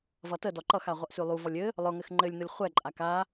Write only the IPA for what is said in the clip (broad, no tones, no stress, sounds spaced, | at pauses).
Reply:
v ʌ t ə d ɔ ǃ ʌ x a ʁʷ ʌ ʔ s y lˠ u v ɔ lʲ ɘ | lˠ ʊ ŋ ɘ x ŋ͡ǃ ɘ lʲ n ʊ lʲ χʷ ɛ ǃʼ a k a